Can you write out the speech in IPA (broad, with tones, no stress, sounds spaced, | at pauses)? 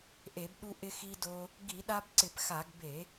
ʔ e˧˩˧ b ɗ u˧ ʔ ɪ˧ x i˧ d o˧ | ɡ i˧˩˧ ɗ a˧ b ǀ ɪ˧˩˧ p x a˧˩˧ ɡ b e˧˩˧